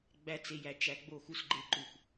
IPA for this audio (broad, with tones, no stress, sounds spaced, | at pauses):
ɡ͡b æ˦ t͡s e˧ j æ˧ t͡ʃ æ˧ ɡ͡b o˦˨ x u˧ s ɡ͡ǃ e˧ ǃ u˨ x